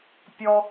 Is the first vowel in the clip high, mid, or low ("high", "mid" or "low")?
mid